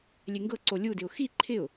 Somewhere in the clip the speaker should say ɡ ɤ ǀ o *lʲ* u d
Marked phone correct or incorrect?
correct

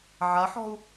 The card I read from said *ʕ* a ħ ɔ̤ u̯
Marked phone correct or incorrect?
correct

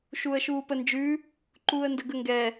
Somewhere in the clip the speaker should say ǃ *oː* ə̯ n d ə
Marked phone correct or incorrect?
incorrect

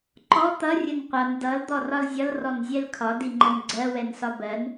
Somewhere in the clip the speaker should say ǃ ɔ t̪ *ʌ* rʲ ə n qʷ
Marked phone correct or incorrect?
correct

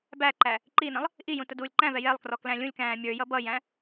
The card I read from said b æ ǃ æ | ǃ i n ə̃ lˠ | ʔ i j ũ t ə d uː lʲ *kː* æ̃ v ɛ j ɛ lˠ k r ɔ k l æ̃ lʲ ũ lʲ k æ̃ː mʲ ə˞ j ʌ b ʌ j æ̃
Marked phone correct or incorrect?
incorrect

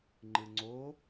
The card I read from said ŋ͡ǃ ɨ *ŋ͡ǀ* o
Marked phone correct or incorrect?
correct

